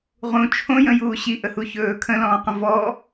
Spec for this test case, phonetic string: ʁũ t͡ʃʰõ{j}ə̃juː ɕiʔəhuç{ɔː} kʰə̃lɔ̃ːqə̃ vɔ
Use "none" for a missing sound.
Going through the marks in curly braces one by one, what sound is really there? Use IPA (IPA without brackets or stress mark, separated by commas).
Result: j, ɵː